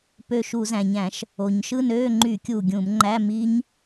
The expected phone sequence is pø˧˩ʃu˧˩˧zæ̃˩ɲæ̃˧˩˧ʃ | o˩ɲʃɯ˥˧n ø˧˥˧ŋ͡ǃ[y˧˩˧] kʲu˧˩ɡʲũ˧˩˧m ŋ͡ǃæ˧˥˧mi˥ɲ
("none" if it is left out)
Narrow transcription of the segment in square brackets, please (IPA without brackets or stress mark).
y˧˩˧